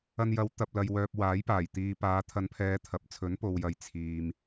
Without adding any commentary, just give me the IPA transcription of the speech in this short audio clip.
ɐ˧njɐ˨˧w t̪ɐ˨p̚lɐ˨jwœː˨p̚ waː˨˥jpaː˨˩jt̪iː˨ paː˨˧t̪ʰɐ˨˧npʰɛː˨˧ t̪ʰɐ˨p̚ t͡sʰɵ˨˥npo˨wjɐ˨j t͡sʰiː˨m

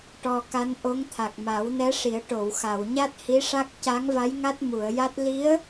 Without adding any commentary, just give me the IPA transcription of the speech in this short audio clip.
ʈɔ˧ka˧˥nʔo˧˥ŋ t̪ʰa˨˩k̚ma˨˩˦wnɛ˧˥ ʂi˨˩˦ə̯ ʈo˨˩˨wxa˨˩˨wɲa˦˥t̚ hi˧˥ʂa˦˥k̚ ca˧˥ŋva˧˥j ŋa˦˥t̚mu˨˩˨ə̯ja˦˥t̚ li˧˥ə̯

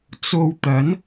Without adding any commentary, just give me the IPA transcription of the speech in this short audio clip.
t͡so˧wt̪ɐ˨˥n

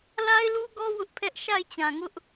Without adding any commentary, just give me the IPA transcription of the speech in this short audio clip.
la˦ɪ̯lu˦ɡɔ˦ wʊ˦ʔpʰɛ˦ʔ ʃa˦˨ɪ̯t͡ɕã˨ ŋʊ˦ʔ

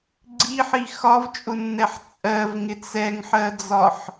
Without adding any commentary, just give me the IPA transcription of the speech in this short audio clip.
ɡ͡ǀiħi xɒvt͡ʃʼʊnːɛħ t͡sʼɜvŋɪt͡s ɛŋħɜd͡zɒħ

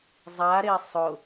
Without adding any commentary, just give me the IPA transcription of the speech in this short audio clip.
zˤaɾe sˤʊ

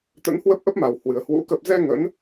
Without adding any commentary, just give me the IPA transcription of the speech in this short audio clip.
t̪ə̰˧˥nhwə˦˥p̚ʔə˦˥p̚ma˨˩w hwɨ˨˩ə̯hwṵ˧˥ kə˨˩p̚zɛ˧ ŋə̰˧˥n

